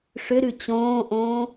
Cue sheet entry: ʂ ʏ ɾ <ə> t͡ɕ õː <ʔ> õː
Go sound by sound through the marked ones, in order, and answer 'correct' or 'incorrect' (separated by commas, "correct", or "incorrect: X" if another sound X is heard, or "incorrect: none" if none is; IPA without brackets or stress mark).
incorrect: ʉ, correct